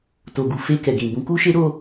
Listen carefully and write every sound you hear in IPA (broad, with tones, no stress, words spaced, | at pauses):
to˨ɡu˨ fe˧kɛ˨ɡĩ˨ bũ˨˦ku˦ʃe˦ ɾo˧